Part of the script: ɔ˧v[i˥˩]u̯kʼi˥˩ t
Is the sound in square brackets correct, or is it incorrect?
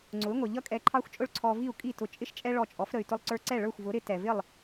correct